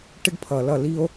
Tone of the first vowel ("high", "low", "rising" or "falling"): high